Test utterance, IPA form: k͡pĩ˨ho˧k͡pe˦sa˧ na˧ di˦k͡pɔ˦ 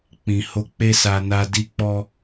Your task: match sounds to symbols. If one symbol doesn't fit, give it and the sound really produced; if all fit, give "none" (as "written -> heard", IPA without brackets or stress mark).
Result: none